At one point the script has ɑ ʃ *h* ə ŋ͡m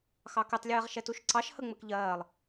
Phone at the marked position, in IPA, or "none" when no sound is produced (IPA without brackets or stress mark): h